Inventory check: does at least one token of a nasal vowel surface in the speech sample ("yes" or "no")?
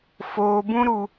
yes